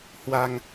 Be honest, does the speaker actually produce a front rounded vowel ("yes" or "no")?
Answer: no